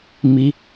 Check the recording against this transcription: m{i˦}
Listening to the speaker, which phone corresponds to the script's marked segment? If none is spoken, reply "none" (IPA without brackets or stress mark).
i˦